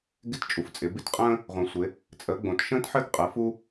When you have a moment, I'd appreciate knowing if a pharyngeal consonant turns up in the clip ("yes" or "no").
yes